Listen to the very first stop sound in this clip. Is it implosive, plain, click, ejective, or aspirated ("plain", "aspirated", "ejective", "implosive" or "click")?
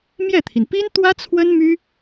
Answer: aspirated